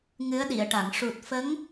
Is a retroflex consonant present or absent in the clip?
present